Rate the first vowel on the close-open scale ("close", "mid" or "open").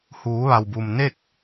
close